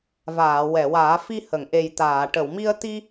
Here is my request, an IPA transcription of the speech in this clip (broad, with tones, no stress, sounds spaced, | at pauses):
v aː˨˩˨ w ɛ˨˩˨ w aː˨˩˦ f i˧ h ə˨˩˨ ŋ ʔ e˨˩ j t̪ aː˨˩˨ ʈ ə˨˩˨ w m i˧ ə̯ t̪ i˧